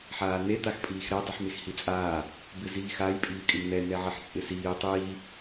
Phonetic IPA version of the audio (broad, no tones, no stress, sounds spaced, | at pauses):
ħ aː n̪ e t̪ a x pʼ iː x ɾ ɛ dˤ i ħ m e x h i t͡sʼ aː | b ɪ z iː x a j pʼ iː kʼ ɪ m n̪ ɛ n ɛ ʕ ɪ ħ t͡sʼ ɪ s iː tˤ iː